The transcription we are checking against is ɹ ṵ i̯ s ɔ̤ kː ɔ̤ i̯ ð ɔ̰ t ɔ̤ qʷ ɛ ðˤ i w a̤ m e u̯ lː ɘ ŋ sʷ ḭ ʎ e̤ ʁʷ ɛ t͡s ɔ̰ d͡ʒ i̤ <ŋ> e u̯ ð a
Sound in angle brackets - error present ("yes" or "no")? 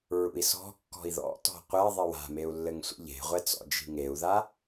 no